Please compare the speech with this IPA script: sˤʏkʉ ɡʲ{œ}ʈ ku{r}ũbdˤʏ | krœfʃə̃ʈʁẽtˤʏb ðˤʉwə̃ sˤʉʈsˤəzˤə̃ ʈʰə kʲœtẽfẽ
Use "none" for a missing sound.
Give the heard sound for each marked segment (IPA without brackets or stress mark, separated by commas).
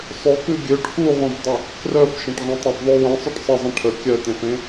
ø, ʁ